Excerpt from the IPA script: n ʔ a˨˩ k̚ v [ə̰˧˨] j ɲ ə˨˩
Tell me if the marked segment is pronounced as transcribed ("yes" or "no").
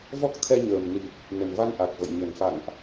yes